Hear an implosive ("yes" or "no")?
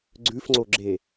no